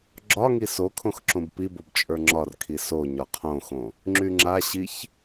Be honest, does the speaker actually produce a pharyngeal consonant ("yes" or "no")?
no